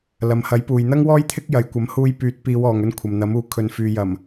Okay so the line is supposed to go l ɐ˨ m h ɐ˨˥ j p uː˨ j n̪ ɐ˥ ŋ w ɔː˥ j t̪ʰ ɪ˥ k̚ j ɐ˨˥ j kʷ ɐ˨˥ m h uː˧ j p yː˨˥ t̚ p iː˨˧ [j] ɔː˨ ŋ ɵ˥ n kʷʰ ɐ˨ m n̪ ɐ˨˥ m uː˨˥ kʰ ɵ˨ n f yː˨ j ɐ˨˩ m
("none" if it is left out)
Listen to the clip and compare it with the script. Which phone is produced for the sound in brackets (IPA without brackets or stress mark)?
w